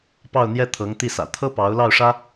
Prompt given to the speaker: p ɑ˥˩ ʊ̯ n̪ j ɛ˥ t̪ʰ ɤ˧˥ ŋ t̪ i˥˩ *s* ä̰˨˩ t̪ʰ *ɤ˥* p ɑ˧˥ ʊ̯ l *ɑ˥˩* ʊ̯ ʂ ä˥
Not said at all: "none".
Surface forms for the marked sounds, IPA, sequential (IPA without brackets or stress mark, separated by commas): s, ɤ˥, ɑ˥˩